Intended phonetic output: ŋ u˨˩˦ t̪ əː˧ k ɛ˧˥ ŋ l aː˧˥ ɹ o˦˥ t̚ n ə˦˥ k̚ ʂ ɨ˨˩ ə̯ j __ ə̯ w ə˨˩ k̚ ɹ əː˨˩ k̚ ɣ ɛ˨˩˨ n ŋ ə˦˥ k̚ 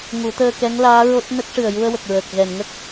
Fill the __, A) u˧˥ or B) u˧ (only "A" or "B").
B